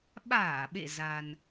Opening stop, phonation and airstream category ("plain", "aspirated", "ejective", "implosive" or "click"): implosive